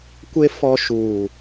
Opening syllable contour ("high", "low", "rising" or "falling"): high